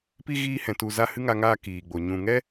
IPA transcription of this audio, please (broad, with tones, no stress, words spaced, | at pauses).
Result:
pi˧ ɣiː˧hɛ̃˨tu˨ za˧ hɨ˦ŋa˧ŋaː˧ kiː˨ɡ͡bo˨ ɲũ˨ŋɛ˦